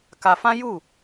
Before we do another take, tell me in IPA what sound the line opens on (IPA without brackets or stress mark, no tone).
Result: k